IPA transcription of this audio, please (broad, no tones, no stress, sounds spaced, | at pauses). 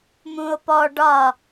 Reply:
m ũ o̯ p ɔ ɖ ɒ